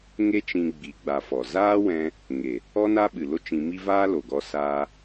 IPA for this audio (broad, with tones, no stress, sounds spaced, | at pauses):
ŋ e˦ t͡ʃ ĩ˧ ɡ͡b i˨˦ ɡ͡b a˧ f ɔ˨ z aː˦ w ɛ̃˧ | ŋ e˨ | ɔ˦ n a˦ ɓ ɨ˨ l o˦ t͡ʃ ĩ˧ m i˦ v aː˦ l o˨ ɡ ɔ˧ s aː˧